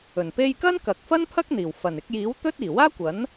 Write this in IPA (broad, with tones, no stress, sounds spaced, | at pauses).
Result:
ɵ˨˩ n p e˧ j k ɐ˥ n k ɐ˨ k̚ f ɐ˥ n pʰ ɐ˥ k̚ n̪ iː˨˩ w f ɐ˨˩ n ɪ˧ k̚ j iː˨˥ w t̪ ɵ˥ t̚ iː˨˩ w aː˥ kʷ ɐ˨˥ n